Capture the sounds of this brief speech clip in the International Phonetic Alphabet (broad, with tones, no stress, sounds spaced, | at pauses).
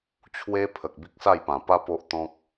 t͡ɕʰ w e˦ pʰ ə˨ k̚ b i˦ k̚ s a˥˧ j p ã˨˩ p a˦ p o˦ ʔ t̪ ɔ̃˦ k̚